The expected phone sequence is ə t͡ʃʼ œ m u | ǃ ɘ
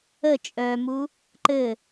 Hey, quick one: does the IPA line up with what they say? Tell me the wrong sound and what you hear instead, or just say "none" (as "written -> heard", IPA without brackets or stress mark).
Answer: none